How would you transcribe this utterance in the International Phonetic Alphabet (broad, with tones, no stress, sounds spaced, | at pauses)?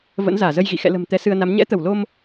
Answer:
v ə̰˧˥ n z aː˧˩ z ə˧ j ɣ ḭ˧˨ x ɛ̰˧˨ l ə̤˨˩ m t̪ ɛ˨˦ s ɨ˧ ə̯ n a˨˦ m ɲ ɛ̰˧˥ t̪ ə˧˩ w l o˧ m